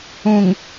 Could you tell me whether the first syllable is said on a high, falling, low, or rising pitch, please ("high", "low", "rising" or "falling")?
low